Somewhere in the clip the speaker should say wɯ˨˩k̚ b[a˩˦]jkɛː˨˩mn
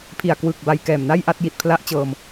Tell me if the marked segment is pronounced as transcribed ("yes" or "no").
no